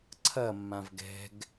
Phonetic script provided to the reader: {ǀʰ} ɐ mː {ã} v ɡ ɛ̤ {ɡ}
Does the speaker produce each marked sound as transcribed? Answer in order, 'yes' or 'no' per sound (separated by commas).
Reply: yes, yes, yes